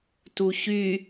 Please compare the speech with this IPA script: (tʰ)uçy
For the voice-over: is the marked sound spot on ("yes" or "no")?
no